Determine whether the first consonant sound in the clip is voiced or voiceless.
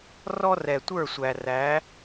voiced